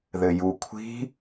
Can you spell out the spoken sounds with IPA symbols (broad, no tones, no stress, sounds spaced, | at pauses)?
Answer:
ð ɘ j u kʷʰ i̤